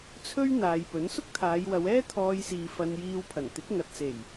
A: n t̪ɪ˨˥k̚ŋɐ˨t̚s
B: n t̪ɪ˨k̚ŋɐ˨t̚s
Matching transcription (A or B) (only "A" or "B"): A